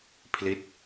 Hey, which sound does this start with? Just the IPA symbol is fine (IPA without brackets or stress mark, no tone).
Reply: pʰ